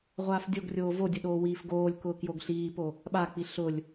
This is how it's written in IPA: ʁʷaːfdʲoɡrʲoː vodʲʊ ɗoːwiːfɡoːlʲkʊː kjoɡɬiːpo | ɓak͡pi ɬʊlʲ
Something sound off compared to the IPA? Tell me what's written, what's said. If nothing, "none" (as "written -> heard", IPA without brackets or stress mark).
none